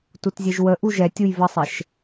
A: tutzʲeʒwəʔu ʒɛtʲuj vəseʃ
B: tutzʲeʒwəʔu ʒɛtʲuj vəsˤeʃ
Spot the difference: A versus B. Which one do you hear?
B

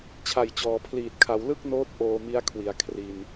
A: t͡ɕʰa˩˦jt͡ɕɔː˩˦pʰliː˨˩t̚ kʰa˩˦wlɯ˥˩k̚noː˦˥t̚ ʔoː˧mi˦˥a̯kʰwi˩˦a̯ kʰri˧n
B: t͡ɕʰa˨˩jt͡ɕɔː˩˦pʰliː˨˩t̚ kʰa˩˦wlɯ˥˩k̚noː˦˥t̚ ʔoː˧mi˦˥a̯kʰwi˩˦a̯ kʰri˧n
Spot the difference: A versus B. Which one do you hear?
B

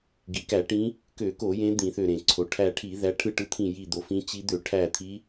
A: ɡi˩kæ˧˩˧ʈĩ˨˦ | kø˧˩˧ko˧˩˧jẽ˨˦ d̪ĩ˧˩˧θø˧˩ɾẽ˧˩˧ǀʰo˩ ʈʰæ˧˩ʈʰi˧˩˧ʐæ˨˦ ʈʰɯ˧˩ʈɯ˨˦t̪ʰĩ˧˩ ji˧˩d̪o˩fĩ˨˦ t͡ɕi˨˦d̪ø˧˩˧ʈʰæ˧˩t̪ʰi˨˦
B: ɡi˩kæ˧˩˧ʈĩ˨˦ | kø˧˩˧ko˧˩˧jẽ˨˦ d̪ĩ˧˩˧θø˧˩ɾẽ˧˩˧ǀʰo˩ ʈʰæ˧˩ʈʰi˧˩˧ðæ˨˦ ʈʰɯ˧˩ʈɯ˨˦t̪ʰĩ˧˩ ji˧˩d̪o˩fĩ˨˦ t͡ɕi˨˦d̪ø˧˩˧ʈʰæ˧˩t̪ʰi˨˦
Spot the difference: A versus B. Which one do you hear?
B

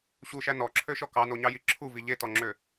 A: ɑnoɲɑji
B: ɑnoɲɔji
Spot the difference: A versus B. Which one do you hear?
A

